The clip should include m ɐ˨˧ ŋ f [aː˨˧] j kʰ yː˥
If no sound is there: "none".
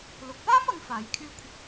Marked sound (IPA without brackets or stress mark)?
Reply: aː˨˧